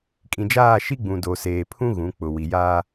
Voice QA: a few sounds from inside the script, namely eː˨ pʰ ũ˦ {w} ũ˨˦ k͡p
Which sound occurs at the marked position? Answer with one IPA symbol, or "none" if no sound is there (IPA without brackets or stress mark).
ɣ